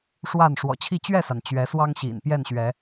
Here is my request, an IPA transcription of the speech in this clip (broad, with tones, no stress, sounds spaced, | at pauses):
ʂ w a˥˨ n ʂ w ɔ̰˨˩ t͡ɕʰ i˥˨ t͡ɕ ɥ ɛ˥˨ s a˩ n t͡ɕ ɥ ɛ˨˦ s w ɑ˦ ŋ ɕ ḭ˨˩ n p j ɛ˥˨ n ɕ ɥ ɛ˨˦